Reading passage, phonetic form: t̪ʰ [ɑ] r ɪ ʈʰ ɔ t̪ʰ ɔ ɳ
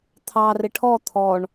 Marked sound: correct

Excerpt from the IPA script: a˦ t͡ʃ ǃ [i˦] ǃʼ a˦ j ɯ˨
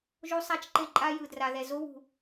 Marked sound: incorrect: e˦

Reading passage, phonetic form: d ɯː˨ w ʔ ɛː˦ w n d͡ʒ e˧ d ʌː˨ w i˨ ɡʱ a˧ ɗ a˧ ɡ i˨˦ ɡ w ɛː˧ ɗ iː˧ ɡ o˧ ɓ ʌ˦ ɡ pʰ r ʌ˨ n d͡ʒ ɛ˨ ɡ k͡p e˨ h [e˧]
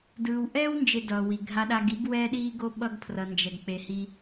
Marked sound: incorrect: i˧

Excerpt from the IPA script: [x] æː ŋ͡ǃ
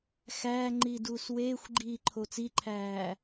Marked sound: correct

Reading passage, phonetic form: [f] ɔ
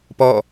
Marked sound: incorrect: p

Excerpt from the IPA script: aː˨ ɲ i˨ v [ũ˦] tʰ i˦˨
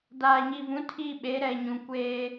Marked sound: incorrect: ũ˨˦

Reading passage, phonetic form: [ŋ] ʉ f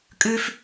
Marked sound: incorrect: kʼ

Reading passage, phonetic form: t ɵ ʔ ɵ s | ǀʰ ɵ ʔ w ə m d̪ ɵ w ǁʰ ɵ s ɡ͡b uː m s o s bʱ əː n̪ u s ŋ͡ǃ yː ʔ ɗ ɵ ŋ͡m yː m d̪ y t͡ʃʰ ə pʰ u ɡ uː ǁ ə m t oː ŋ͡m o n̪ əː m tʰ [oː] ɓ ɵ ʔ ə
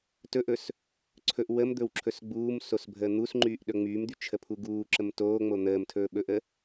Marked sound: incorrect: ɵː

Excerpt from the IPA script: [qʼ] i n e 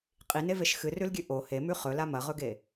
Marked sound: correct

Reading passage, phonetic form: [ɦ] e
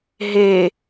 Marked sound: correct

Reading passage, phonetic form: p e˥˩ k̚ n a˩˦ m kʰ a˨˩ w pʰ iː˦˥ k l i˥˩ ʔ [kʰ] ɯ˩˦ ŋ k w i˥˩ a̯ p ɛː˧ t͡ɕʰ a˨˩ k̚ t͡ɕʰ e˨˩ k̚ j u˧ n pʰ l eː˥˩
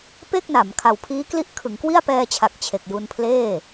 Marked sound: correct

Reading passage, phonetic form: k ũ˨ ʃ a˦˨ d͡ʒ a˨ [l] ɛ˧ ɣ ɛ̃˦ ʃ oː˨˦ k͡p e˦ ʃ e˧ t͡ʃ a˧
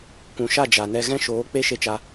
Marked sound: incorrect: n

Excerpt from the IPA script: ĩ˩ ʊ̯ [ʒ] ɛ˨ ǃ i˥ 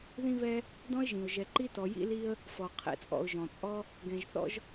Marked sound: correct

